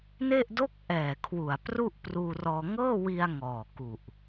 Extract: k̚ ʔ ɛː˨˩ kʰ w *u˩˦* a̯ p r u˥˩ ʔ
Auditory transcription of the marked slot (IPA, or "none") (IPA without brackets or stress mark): u˨˩